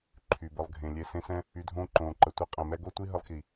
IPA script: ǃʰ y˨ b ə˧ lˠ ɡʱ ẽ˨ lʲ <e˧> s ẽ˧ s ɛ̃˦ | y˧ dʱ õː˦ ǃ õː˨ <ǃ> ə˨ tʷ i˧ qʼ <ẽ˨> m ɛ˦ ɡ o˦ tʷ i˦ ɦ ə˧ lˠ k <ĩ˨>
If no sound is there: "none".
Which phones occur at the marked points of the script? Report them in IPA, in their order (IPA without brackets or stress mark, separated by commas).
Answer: e˧, ǃ, ẽ˨, i˨